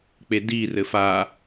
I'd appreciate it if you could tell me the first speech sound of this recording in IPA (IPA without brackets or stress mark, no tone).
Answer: k͡p